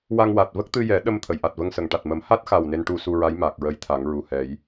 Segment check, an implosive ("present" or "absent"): present